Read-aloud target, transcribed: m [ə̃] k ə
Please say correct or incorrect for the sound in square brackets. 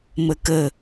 incorrect: ə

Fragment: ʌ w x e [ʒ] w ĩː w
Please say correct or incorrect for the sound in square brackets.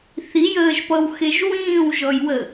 correct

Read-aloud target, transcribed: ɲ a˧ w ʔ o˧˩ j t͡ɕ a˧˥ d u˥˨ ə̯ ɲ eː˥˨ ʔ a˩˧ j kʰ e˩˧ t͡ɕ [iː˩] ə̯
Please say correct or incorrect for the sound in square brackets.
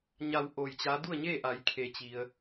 incorrect: i˩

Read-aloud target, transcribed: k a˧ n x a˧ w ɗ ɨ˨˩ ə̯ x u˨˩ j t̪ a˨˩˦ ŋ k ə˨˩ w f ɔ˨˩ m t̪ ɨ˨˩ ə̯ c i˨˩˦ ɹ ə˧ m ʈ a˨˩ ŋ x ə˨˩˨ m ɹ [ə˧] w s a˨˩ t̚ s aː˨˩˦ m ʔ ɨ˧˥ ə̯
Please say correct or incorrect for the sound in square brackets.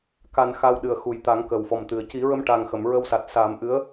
correct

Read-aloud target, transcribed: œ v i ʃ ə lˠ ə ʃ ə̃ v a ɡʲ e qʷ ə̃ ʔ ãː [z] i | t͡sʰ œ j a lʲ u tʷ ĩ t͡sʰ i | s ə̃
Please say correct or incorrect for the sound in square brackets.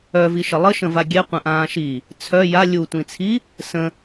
incorrect: ʃ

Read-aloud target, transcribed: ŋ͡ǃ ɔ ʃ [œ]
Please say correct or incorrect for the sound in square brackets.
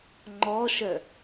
correct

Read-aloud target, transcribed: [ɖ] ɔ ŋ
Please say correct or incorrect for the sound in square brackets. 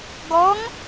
incorrect: ɡ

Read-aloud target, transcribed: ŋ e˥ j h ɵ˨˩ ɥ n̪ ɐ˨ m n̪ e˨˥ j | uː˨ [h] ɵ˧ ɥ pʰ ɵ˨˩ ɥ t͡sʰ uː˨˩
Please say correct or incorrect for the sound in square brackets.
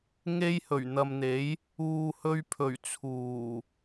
correct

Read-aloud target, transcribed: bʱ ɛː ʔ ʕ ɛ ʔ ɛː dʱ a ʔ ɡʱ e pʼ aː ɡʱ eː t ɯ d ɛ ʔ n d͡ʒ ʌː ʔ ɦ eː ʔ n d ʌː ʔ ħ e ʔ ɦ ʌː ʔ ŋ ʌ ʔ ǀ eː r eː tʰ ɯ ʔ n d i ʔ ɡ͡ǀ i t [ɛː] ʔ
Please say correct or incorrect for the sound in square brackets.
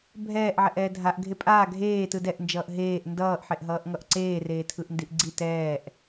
correct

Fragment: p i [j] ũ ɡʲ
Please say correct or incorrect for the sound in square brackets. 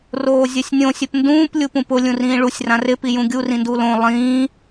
correct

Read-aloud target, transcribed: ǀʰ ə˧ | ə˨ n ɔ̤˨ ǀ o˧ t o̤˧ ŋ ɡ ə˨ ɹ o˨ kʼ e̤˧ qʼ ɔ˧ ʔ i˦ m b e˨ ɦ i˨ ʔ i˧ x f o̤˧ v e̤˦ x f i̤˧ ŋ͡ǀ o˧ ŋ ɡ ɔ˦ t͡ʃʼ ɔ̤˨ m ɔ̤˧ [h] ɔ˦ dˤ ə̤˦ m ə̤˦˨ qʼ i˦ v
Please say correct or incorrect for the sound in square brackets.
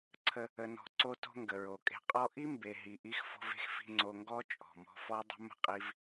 incorrect: f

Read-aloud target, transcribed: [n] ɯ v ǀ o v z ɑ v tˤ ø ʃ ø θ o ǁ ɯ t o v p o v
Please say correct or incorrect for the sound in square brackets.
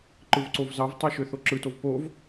incorrect: ǃ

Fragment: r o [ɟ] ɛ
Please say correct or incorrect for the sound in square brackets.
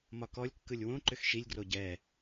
correct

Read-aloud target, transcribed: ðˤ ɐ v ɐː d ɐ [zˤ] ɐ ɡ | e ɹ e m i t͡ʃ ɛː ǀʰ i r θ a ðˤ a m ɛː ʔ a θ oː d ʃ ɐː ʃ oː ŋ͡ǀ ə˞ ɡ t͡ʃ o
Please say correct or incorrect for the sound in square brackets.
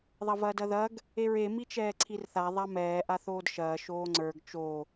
incorrect: ð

